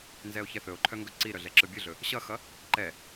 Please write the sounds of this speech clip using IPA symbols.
n z ɛ o̯ ç ɛ θ ɵ o̯ ǃʰ œ ŋ ɡ ɵ ǀ i ɾ œ ɮ ɛ ǁ ɯ bʲ ɯ ɮ ɵ | ɕ ʌ x ʌ | ǃ ɛ

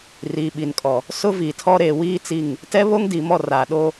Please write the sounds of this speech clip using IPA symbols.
r iː˨ ɓ i˨ n kʼ ɔ˨ | s ʊ˦ v i˨ tʰ ɔ˦ ɾ eː˨ w iː˦ t͡s i˦˨ ŋ | t ɛ˦ β o˦ ŋ d i˨ m ɔ˦˨ r aː˨ ɗ o˦

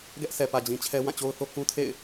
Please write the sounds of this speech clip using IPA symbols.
ɡ ɛ˦ ʔ sʰ ɛ˨ p ä˨ d͡ʑ ĩ˨ t͡ɕʰ ɛ˦ w ã˦˨ t͡ɕ o˦ ʊ̯ θ o˦ k ũ˦ tʰ ḛ˦˨ ɪ̯

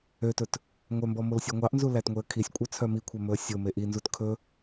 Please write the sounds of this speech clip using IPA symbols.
ø t ɵ t | ŋʷ œ m b ɔ m o l sʲ ɔ ŋʷ ɑ ʔ n z u l æ t ŋʷ e ə̯ kʰ i sʲ kʷʼ œ t͡sʰ œ m i kʷʰ ɛ m ɵ ə̯ sʲ o m e ʔ i n z u t kʰ ɵ

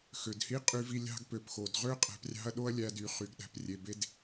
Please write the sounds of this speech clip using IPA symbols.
x ø˩ d h i˥ qʼ y˧ v i˧ lʲ ɑ̤˧ ɡ p ø˩ p x o˩ d ʁ ø˥ qʼ æ̤˧ p rʲ ɑ̤˥ ɐ̯ ɗ o˥ ɐ̯ lʲ æ˧ d y˩ χ y˩ ɡ ɗ æ̤˩ p rʲ e˩ b e˥ d

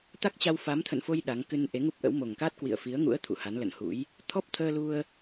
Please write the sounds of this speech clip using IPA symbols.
t̪ a˦˥ k̚ t͡ɕ a˧ w f a˨˦ m t̪ʰ ə̰˧˨ n f o˧ j ɗ a˨˦ ŋ k ɨ˧ n ʔ e˨˦ ŋ u˦˥ p̚ ʔ ə̰˧˥ w m o˨˩ ŋ k a˦˥ t̚ k w ḭ˧˨ ə̯ f i˨˦ ə̯ ŋ ṵ˧˥ ə̯ t̪ʰ ṵ˧˨ h a˨˦ n l ə̰˧˨ n h ṵ˧˥ j | t̪ʰ ɔ˦˥ p̚ t̪ʰ əː˧ l u˧ ə̯

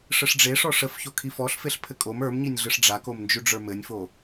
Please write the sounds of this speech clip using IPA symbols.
ʂ ə ʂ ɖ͡ʐ e ʂ ɔ ʂ ə f ç o kʰ i f ɔ ɬ f e ɬ pʰ ɘ kʼ o m ə˞ m ɲ i nʲ ɮ ɯ ʂ ɖ͡ʐ a k o m n d͡ʒ ʉ ɖ͡ʐ ə˞ m ɘ nʲ f o

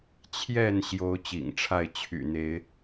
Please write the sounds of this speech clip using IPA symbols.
t͡ɕʰ j ɛ˥˨ n ɕ j o˨˦ ʊ̯ t͡ɕ ḭ˨˩ ŋ ʈ͡ʂʰ a˥˨ ɪ̯ t͡ɕʰ y̰˨˩ n̪ e˨˦ ɪ̯

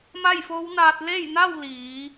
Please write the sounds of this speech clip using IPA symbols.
m a˥˨ j f o˧˥ w n aː˧ t̚ l e˥˨ j n a˥˨ w l iː˩˧

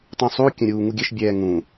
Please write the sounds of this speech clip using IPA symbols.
tˤ ũ sˤ u kʲ ə̃ ɾʲ uː ŋ u ɡʲ ɘ ʃ bʲ ɛː ŋ ũ

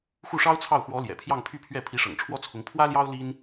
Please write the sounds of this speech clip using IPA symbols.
x u˥˩ ʂ ɑ˥ ʊ̯ t͡sʰ ɑ˥˩ ʊ̯ x w ɔ˧˥ l j ɛ̰˨˩ pʰ j ɑ˥˧ ŋ pʰ y˥˧ pʰ ɥ ɛ˥˩ pʰ i˧˥ ʂ ɤ̰˨˩ ŋ ʈ͡ʂʰ w ɔ˥ t͡sʰ ʊ˧˥ ŋ pʰ w ä˥ l j ɑ˥ ʊ̯ l i˥ n

